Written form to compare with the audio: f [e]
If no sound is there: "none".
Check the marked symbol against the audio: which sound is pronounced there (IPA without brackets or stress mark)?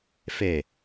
e